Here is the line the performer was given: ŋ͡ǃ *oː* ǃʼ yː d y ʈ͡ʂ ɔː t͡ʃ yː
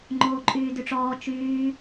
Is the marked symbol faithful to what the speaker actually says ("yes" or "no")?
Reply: yes